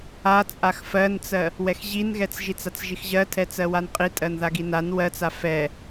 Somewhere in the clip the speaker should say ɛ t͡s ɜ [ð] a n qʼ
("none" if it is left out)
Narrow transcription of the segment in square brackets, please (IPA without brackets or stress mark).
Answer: w